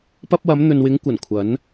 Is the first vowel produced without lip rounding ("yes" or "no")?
yes